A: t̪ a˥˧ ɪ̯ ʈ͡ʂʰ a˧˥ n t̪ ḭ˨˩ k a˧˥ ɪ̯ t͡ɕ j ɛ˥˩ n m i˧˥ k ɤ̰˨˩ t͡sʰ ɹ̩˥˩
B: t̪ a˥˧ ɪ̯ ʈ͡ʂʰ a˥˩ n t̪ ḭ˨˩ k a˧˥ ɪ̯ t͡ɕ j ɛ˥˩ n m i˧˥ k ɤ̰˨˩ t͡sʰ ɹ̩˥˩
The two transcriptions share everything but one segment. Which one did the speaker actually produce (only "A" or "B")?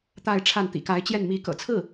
B